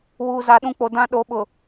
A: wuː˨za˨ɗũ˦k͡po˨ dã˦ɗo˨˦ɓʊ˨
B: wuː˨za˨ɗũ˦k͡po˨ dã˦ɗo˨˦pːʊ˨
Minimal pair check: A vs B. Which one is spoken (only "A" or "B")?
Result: A